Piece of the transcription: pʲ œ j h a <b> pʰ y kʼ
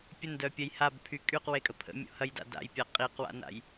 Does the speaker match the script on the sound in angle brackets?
yes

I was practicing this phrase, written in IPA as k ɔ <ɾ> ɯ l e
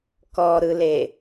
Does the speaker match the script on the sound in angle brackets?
yes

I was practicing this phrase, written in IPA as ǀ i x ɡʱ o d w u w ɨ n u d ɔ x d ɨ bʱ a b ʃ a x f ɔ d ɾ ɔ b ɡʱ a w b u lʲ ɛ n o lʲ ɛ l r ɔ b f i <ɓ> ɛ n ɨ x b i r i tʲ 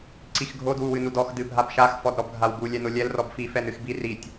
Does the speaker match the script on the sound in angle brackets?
no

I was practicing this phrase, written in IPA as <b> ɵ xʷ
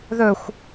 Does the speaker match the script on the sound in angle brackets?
no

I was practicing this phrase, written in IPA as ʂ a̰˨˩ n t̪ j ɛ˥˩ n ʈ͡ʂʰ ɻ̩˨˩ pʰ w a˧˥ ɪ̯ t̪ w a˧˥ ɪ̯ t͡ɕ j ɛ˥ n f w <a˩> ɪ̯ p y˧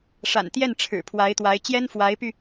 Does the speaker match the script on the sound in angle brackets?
no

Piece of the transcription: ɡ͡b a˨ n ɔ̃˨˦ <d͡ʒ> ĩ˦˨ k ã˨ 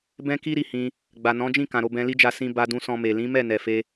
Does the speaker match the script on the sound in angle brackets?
yes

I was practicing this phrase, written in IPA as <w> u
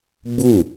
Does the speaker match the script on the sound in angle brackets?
no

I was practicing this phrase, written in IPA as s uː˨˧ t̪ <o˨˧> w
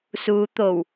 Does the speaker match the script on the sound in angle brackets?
no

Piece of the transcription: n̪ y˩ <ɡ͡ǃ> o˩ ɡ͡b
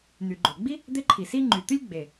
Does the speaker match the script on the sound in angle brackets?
yes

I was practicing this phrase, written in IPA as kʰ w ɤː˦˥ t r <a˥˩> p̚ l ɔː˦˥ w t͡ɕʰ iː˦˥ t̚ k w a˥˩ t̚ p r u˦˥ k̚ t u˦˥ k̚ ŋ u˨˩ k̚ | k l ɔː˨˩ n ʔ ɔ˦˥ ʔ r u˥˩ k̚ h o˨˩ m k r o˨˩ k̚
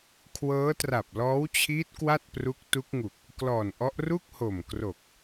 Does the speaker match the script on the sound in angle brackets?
no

